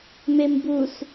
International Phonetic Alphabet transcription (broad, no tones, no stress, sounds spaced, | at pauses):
m e m b u s